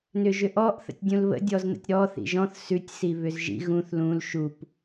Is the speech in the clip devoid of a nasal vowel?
no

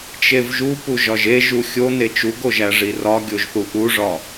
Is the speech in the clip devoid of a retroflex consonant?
no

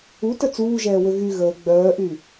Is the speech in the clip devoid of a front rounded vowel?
no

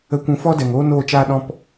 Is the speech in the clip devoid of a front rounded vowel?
yes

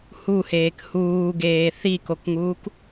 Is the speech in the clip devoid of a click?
yes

